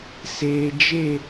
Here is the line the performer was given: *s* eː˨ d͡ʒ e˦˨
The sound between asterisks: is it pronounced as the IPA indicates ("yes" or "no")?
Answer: yes